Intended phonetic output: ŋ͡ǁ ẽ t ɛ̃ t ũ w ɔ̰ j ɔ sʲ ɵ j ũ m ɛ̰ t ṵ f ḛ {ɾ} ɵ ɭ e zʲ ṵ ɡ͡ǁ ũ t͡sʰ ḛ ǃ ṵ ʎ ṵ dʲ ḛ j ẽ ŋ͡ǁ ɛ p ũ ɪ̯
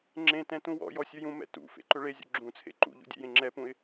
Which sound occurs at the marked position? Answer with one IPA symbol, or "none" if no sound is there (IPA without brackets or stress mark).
ǃ